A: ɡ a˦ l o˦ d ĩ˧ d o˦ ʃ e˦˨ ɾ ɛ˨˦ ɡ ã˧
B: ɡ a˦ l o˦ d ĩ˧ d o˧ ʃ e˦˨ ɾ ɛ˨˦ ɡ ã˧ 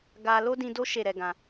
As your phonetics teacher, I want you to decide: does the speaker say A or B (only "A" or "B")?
A